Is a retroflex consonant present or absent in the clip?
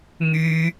absent